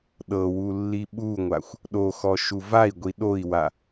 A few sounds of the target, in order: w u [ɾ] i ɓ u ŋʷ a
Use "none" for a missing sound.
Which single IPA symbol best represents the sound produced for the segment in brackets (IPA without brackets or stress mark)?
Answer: lː